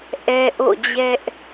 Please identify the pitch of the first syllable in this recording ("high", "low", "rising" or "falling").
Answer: high